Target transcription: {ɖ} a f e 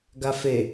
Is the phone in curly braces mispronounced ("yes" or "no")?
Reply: yes